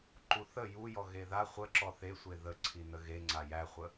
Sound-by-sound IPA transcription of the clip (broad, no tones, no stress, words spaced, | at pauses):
ǃuθə jujɔ ɣeða χʷə ǁɔθesʷe ðə ǀʰinəɣeŋ͡ǀa jæχʷə